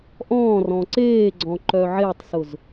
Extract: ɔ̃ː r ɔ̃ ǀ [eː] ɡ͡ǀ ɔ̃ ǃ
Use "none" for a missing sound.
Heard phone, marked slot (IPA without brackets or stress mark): eː